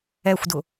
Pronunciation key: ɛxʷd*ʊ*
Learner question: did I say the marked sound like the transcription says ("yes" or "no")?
yes